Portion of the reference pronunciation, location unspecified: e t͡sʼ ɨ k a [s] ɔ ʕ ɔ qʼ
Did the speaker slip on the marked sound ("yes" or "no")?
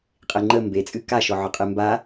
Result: yes